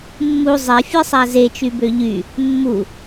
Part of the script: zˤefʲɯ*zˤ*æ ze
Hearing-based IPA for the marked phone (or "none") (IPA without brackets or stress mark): sˤ